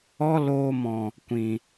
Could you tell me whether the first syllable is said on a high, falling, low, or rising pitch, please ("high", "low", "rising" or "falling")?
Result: high